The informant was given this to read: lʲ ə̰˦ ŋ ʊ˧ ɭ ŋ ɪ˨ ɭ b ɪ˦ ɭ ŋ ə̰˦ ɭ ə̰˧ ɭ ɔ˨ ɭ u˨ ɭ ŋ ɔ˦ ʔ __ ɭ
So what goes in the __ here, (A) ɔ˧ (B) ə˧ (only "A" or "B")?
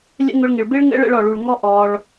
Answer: A